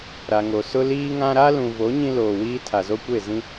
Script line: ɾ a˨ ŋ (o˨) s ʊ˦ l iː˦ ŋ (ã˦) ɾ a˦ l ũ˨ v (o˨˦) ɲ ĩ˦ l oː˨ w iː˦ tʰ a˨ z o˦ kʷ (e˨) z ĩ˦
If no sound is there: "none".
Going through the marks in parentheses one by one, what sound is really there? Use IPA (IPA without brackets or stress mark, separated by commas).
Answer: o˨, ã˦, o˨˦, e˦˨